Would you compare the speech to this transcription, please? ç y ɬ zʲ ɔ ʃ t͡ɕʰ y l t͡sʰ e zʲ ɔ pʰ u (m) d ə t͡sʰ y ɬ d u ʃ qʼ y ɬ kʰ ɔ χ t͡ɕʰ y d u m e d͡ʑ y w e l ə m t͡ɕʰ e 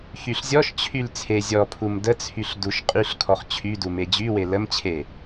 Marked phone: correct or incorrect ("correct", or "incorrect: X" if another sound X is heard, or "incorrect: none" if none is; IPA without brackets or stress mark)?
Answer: correct